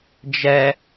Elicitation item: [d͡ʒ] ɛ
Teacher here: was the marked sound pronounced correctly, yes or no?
yes